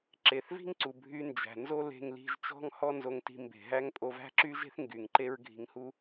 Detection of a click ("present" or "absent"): present